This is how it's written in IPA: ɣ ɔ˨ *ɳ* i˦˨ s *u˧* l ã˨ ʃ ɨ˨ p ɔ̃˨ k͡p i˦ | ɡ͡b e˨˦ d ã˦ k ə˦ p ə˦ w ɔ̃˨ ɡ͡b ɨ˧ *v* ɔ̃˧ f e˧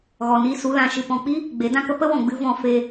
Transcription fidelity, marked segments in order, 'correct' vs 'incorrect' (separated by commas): incorrect, correct, correct